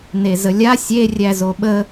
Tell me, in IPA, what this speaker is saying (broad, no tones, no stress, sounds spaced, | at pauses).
n e z ə lʲ a sʲ e rʲ æ z o ɓ ə